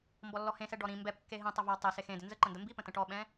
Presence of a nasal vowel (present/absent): present